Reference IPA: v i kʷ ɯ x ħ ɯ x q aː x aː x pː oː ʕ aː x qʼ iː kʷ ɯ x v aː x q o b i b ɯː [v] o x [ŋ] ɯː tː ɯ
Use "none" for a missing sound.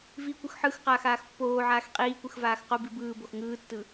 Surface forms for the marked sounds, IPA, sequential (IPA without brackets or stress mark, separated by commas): b, ŋ